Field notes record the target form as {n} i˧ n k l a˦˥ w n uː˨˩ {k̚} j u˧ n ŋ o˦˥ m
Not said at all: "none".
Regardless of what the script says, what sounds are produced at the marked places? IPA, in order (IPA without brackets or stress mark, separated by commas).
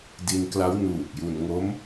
d, k̚